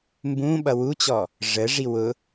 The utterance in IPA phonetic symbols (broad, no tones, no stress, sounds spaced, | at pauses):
m b ũ ɓ ʌ w u t͡ɕ ɔ | ʐ ə ʐ i w ʊ